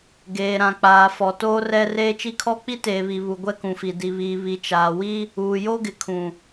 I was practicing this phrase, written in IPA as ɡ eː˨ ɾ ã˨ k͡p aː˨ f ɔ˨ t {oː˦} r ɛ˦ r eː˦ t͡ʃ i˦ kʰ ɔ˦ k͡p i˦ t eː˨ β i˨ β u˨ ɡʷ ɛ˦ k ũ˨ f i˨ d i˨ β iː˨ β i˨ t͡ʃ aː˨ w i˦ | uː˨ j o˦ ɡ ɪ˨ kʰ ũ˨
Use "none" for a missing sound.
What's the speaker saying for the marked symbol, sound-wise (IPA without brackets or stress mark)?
oː˦